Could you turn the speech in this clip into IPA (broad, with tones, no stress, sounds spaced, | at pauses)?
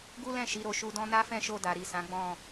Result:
ɡ u˦ l ɛ̃˦˨ ʃ i˨˦ ɾ o˧ ʃ u˧ d ɔ̃˦ n a˦ f ɛ̃˦˨ ʃ o˧ d a˨ ɾ i˨ s ã˨˦ ɡ͡b ɔ̃˦˨